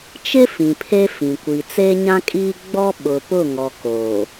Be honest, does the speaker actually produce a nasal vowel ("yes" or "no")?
yes